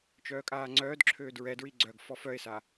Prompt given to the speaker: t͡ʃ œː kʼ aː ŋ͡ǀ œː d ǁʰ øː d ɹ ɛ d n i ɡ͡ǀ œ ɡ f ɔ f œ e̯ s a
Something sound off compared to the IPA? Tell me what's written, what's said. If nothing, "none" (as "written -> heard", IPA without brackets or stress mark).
n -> ɹ